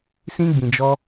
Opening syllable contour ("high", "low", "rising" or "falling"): high